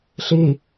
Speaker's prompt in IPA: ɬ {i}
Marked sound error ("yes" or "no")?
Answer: no